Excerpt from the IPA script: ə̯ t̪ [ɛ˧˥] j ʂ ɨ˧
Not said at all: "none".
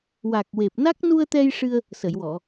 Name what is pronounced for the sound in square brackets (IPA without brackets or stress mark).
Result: ɛ˧